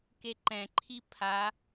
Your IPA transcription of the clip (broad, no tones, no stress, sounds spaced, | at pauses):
k e ǃ ɛ̃ ǃʰ i pʰ a